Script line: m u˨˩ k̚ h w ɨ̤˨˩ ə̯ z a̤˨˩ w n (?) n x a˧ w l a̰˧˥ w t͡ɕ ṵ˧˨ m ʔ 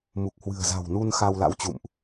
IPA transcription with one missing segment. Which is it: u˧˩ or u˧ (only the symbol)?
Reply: u˧